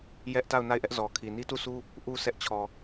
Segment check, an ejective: absent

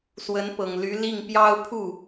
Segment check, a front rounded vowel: present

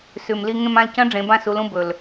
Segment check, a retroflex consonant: present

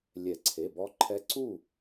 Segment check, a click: present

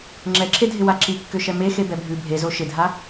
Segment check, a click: present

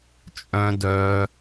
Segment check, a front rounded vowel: present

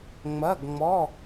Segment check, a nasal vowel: absent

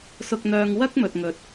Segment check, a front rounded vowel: present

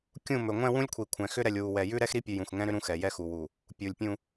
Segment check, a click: absent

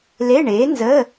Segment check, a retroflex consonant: present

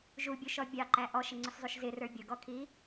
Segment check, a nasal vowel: absent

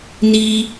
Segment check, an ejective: absent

